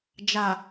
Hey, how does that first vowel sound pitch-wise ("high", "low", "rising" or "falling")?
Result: low